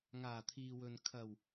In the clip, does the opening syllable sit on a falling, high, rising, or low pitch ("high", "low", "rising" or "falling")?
low